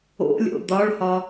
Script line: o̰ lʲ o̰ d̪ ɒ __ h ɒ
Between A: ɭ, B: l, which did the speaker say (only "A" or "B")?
A